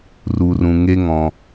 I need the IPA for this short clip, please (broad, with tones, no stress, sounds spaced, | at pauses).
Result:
r u˨ r ũ˨ ŋ e˦ ŋ ɔ̃˧